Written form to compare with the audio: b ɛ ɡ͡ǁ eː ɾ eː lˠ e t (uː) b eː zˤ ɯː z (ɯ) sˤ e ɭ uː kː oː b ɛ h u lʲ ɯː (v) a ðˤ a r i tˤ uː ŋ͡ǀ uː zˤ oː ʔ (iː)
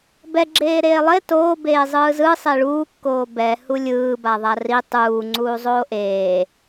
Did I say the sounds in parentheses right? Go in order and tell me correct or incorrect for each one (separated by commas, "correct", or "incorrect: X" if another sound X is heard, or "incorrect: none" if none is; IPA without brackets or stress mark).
incorrect: oː, correct, incorrect: b, incorrect: eː